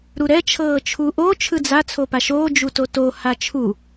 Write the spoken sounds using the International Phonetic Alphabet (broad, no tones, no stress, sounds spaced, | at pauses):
ɾ u ɾ ɛ t͡ʃʰ ɤː t͡ʃʰ u ʔ o t͡ʃʰ ɯ d͡z a t͡sʰ o p a ʃ oː d͡ʒ u t o t o h a t͡ʃʰ u